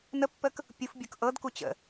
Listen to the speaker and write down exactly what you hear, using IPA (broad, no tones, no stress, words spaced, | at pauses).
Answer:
nəpːək | pʲufbʲʊk ʔɤdku t͡ɕə̰